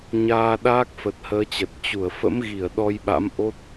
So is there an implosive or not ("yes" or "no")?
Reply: yes